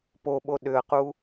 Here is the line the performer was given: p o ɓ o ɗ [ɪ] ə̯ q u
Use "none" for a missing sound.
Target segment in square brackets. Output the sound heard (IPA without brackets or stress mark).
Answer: ʏ